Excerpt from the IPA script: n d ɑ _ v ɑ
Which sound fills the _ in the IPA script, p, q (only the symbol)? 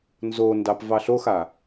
p